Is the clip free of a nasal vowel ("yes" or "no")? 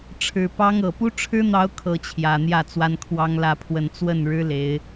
yes